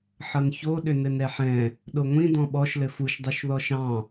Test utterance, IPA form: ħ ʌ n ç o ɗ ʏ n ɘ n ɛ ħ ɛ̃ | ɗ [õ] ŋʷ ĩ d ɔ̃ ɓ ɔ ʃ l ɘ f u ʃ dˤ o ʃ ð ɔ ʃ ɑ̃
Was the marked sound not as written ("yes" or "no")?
yes